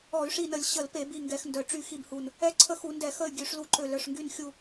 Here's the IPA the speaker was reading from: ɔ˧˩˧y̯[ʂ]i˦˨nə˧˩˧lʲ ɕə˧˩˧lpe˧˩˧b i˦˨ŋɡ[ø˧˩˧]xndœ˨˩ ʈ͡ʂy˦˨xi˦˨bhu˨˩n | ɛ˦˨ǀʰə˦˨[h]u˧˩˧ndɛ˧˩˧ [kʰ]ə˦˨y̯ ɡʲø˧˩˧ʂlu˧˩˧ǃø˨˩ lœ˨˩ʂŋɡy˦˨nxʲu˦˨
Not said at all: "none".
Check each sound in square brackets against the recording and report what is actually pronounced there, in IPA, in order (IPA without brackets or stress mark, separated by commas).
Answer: ʂ, ɛ˧˩˧, x, x